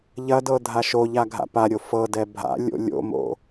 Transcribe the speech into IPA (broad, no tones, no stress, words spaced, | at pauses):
ʎɐdɤ dʱaʃoʎa ɡʱa̰paɾʲo fɤdɛ bʱa̰ lʲo̰ lʲo̰mo̰